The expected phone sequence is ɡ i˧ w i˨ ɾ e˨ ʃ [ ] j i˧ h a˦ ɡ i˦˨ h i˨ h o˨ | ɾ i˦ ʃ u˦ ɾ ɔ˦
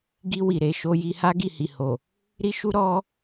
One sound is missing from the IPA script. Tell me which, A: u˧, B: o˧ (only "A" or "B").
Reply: B